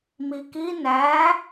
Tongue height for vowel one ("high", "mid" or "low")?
high